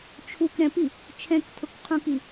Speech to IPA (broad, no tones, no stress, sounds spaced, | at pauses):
t͡ʃʰ u k ɾ ɛ̃ p i | t͡ʃʰ ɛ̃ k tʰ ʊ k qʰ ũ k i